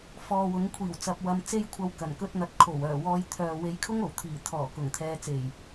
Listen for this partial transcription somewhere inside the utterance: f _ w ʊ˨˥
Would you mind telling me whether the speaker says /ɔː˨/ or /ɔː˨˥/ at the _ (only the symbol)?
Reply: ɔː˨